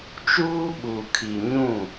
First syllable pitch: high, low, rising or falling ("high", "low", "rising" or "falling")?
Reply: high